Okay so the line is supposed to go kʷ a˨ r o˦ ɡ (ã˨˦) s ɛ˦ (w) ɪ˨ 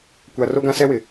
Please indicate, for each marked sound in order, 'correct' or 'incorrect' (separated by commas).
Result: incorrect, correct